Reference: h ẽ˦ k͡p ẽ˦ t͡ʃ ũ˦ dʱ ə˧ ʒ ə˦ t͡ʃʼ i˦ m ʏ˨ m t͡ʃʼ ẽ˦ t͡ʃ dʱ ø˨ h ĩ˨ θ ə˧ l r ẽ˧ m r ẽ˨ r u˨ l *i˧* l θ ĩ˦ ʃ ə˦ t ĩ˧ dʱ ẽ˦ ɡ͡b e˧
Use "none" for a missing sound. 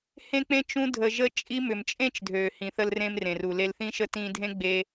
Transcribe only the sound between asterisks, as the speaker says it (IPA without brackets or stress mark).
e˧